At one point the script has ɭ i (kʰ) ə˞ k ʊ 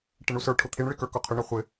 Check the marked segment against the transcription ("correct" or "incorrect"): incorrect